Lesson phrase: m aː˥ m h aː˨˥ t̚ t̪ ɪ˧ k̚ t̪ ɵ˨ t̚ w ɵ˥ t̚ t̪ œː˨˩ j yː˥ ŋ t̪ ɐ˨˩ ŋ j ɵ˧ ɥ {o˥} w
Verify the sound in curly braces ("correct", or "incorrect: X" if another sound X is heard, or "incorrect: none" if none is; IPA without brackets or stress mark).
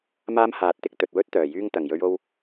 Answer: incorrect: o˧